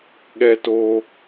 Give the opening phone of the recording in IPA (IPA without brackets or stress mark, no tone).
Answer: ɠ